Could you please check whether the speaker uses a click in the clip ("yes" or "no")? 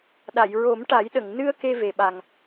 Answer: no